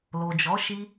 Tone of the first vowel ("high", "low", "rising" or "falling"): low